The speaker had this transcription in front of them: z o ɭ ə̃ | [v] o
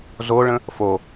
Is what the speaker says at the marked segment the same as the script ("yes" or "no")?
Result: no